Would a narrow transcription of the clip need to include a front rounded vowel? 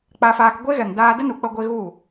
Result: no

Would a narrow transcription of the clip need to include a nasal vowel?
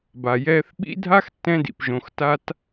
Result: yes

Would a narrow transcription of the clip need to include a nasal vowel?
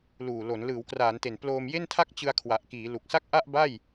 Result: no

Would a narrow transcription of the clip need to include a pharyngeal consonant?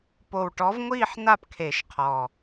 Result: yes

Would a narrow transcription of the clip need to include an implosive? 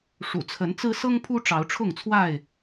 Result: no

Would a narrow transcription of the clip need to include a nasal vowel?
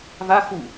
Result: no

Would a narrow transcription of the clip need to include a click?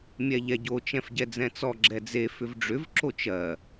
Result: yes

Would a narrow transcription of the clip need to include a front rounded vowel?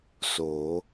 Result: no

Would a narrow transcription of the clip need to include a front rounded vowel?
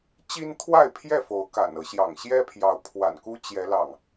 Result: no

